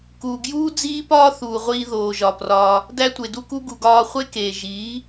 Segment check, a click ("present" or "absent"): absent